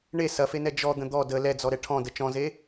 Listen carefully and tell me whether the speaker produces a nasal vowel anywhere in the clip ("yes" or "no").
yes